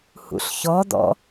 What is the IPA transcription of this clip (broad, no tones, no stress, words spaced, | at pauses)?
hṵɬçɔdɔ̰